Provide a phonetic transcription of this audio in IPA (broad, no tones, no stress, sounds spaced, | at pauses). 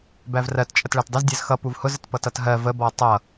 b æ v r ɜ t t͡ʃʼ ə t ɭ æ t dˤ ɪ z dʲ ɜ z x ʌ p u v h ʊ z ə t p ʌ t ʌ t ɦ ɜ v ə b ɔ tˤ ʌ